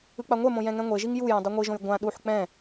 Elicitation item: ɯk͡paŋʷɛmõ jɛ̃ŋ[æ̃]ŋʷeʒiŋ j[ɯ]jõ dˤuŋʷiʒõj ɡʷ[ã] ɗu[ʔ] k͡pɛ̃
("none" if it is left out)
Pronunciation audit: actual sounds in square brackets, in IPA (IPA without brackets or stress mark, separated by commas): ɛ̃, u, ã, ħ